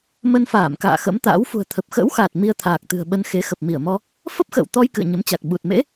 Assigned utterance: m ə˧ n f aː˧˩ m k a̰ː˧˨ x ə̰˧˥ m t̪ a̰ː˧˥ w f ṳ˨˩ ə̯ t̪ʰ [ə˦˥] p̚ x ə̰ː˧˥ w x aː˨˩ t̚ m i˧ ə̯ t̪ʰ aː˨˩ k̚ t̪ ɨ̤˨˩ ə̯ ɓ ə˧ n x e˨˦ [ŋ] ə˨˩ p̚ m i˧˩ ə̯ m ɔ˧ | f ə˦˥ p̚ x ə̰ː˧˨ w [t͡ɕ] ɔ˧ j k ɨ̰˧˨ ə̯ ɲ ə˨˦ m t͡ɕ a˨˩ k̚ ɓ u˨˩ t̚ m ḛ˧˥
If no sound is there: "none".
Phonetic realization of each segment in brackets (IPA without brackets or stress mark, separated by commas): ə˨˩, x, t̪